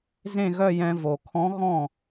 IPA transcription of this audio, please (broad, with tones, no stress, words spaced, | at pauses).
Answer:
zẽ˥˧ɣœ˥˧jɛ̃˧ vo˩kʰɔ̃˧˥ ɣɔ̃˥˩